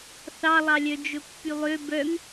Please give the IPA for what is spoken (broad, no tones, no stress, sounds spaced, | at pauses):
θ ɑ lˠ ɑ lʲ œ d͡ʒ ɵ pː y lˠ ø b œ ŋ